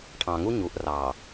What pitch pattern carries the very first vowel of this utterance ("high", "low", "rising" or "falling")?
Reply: low